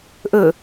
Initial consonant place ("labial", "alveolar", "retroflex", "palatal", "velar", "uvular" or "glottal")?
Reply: glottal